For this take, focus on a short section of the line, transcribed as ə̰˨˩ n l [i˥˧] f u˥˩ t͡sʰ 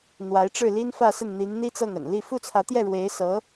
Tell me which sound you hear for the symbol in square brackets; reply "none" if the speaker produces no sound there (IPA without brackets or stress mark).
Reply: i˥˧